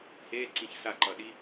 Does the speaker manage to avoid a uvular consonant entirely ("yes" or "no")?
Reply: yes